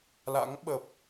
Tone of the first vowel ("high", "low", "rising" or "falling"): rising